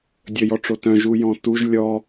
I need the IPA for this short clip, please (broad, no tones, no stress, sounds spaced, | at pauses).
dʲ ə j ɔ ʈ͡ʂ o t œ̃ ʒ u j ɔ̃ t u ʒ lʲ ɔ